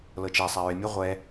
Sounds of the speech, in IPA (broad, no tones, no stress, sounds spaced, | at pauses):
l ɤ t͡ʃ ɛ sˤ ɛ ɹ ɪ mʲ ɤ ʁʷ ɛ